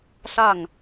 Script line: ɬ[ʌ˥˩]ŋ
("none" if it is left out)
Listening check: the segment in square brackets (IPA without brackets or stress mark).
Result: a˥˩